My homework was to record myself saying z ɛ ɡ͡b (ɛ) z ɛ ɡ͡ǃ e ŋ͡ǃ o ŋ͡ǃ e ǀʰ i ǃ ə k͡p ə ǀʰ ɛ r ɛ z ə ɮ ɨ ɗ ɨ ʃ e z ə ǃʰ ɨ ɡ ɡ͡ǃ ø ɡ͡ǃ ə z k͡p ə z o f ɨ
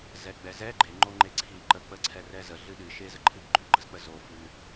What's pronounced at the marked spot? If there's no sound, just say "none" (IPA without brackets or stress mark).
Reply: ɛ